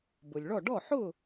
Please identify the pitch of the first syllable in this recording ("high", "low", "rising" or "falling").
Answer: low